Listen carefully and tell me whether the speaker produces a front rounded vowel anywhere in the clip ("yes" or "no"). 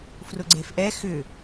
yes